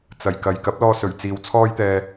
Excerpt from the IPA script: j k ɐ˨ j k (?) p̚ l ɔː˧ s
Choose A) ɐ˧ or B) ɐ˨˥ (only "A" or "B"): B